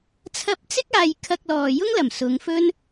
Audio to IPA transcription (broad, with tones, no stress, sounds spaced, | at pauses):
t͡sʰ ɐ˧ p̚ t͡s ɪ˥ k̚ aː˧ j kʰ ɐ˧ k̚ l ɔː˨ j ʊ˥ ŋ l ɐ˨˩ m s ʊ˨˧ ŋ f ɵ˥ n